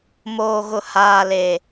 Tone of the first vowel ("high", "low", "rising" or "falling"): low